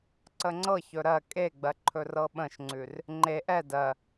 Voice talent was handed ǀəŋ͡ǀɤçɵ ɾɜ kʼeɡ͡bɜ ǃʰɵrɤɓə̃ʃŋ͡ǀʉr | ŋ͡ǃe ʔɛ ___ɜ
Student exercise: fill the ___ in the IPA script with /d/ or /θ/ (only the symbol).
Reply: d